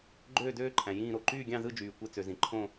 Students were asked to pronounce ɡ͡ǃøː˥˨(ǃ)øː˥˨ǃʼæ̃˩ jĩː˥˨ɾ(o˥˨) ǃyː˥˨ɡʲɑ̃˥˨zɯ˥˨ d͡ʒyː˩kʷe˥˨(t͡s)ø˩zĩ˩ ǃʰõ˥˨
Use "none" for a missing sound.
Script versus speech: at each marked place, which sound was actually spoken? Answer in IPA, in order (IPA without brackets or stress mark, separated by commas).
d, o˥˨, t͡s